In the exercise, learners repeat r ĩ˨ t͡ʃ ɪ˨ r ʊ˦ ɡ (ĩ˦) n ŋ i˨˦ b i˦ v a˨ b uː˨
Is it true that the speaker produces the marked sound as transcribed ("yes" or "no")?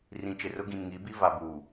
no